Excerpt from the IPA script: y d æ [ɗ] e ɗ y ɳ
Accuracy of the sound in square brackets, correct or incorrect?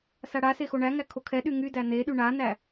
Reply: incorrect